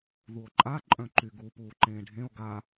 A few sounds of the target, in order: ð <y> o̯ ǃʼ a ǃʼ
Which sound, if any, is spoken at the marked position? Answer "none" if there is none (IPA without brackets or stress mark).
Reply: u